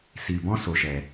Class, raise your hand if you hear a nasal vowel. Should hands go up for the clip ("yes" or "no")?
yes